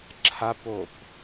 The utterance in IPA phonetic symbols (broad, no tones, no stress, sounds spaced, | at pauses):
ǁʰ a p o p